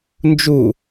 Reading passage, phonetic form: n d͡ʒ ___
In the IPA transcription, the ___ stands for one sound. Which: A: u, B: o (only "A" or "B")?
A